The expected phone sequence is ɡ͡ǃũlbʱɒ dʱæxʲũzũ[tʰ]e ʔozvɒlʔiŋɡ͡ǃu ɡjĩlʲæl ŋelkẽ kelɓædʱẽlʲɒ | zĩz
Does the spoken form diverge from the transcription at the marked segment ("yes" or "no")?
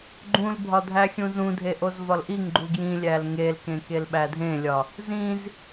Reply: yes